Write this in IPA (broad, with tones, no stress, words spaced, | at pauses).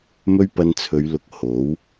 mɵ˥ɥpɐ˧nt͡sʰɵ˨˧ɥlʊ˨k̚ ho˨˥w